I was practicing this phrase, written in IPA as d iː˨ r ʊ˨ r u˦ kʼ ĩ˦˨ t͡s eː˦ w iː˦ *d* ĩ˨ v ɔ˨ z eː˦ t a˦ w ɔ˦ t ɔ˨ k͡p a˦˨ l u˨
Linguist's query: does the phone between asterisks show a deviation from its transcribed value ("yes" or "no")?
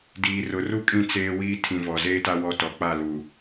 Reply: yes